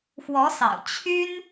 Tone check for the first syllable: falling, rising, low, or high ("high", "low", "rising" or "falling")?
rising